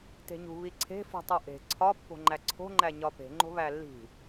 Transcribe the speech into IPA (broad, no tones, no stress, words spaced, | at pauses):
te̤ɲṳ βiǀʰe̤fṳ tˤuʔe̤ ǀʰɒ pːo̤ŋ͡ǃæǀʰo̤ŋ͡ǃæ ɲɒpe̤ ŋ͡ǃo̤βælːi̤